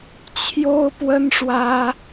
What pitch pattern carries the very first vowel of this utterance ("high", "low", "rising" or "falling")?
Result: high